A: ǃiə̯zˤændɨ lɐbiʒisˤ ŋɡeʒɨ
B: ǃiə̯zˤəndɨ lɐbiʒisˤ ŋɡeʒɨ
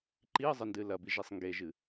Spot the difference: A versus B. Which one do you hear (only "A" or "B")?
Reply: B